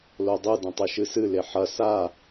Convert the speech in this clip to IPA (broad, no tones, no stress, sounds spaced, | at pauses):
l o dˤ ɨ d ɐ̃ tˤ ɨ ʃ ɨ s ɨ l e ħ ɐ s a